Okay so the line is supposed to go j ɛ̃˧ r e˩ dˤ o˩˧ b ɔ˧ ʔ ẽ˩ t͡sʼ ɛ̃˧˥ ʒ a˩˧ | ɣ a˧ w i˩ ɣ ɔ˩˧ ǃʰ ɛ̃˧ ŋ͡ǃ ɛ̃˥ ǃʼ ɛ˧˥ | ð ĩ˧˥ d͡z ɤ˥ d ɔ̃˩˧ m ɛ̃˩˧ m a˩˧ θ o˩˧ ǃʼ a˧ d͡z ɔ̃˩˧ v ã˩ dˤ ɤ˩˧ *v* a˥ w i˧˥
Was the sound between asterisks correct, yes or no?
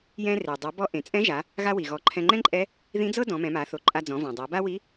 no